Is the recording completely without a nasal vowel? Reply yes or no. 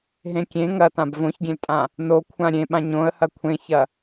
no